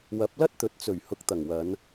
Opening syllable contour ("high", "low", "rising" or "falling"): rising